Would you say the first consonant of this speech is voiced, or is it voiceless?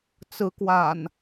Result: voiceless